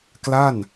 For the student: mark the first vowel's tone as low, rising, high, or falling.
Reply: falling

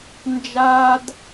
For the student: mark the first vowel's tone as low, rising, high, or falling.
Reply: high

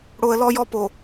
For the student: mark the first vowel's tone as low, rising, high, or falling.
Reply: low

